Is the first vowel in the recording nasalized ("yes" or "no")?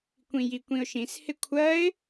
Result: yes